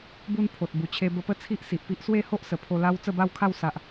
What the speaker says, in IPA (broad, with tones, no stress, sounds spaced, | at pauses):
b u˧ n pʰ o˨ t̚ b u˨˩ t͡ɕʰ e˧ b ə˧ p ə˦ t͡sʰ i˦ ʔ s i˨ ʔ p i˦ ʔ s w e˥˧ h o˦ ʔ s ə˨˩ pʰ o˧ l a˦ w t͡s ə˥˧ b a˥˧ w kʰ a˥˧ w s a˨ ʔ